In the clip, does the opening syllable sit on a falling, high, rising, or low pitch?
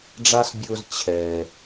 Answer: high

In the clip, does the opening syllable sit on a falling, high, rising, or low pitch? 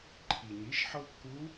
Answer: low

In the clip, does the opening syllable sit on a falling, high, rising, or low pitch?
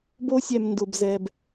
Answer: high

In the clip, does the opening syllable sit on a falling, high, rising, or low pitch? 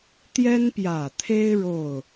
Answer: high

